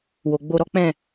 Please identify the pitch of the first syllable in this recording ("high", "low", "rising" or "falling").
low